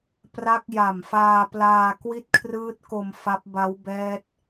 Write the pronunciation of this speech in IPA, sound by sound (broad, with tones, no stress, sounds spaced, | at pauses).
p r a˦˥ k̚ j a˨˩ m f aː˧ p l aː˧ k w i˥˩ t̚ kʰ r ɯː˦˥ t̚ k o˧ m f a˦˥ p̚ b a˦˥ w b ɛː˦˥ t̚